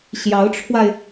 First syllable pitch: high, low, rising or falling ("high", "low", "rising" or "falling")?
rising